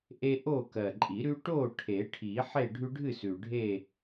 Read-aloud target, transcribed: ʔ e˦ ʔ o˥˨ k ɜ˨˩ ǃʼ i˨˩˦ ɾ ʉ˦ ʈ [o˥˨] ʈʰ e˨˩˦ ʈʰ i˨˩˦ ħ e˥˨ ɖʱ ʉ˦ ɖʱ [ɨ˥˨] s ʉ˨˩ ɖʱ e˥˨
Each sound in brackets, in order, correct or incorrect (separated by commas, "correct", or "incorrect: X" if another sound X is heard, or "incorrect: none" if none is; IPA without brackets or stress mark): correct, correct